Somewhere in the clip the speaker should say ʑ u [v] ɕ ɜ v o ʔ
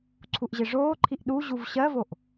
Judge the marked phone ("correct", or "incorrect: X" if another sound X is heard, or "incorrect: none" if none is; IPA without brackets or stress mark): correct